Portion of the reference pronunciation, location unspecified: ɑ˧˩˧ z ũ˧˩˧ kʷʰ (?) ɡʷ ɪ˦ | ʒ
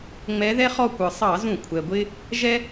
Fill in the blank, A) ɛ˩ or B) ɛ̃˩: A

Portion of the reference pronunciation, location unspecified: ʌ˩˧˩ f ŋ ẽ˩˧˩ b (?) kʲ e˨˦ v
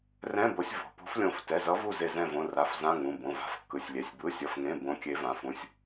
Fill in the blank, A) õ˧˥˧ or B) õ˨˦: B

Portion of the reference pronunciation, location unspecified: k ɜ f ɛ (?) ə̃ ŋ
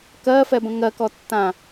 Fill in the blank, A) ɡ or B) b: B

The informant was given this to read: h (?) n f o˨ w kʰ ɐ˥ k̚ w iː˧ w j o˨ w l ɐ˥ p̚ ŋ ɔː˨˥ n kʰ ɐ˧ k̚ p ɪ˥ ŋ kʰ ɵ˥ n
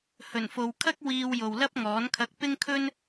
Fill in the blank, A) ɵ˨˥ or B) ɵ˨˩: B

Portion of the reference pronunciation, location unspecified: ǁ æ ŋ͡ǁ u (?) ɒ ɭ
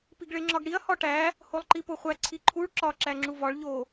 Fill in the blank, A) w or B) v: B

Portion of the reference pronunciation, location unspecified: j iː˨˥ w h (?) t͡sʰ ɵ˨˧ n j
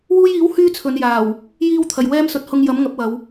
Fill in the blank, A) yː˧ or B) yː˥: B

